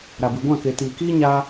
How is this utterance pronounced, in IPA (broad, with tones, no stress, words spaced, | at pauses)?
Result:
ɾa˨bɨ˨ ɡʷã˦˨ke˨ tiː˨kiː˦ ɲaː˧